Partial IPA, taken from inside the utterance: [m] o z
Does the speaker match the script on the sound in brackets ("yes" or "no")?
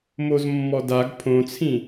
yes